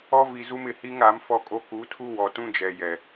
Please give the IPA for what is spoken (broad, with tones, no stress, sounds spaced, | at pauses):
ɔ˦ v i˨ z u˦ m ɪ˨ h i˦ ŋ a˨˦ m f ɔ˦ kʼ o˦ k u˨˦ tʰ u˦ w ɔ˨ t ũ˦ d͡ʒ ɛ˨ j ɛ˨